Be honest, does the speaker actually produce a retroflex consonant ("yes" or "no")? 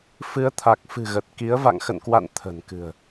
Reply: no